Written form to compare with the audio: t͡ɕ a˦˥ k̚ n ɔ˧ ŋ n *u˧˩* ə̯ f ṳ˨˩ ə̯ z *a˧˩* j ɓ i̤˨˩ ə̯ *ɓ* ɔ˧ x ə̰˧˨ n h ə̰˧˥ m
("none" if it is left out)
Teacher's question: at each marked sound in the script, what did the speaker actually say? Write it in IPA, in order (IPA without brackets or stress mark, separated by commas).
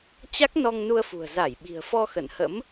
u˧, a˧˩, f